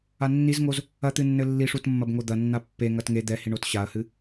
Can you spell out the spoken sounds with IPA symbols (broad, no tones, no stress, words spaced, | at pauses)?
anːizŋoz | ɐt̪ɨnːɘ lːiʂutmːɐb ŋod̪ɐnːa pːe ŋɐtŋe d̪ɛhiɳot ɕaɐ̯hɨ